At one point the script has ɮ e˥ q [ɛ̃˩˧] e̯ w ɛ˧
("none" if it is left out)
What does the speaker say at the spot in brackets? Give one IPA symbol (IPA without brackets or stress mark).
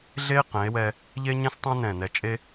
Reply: ɛ̃˩˧